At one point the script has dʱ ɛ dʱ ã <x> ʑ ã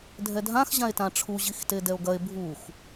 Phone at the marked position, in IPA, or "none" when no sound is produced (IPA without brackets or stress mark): x